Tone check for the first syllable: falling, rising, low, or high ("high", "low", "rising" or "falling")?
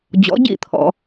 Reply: rising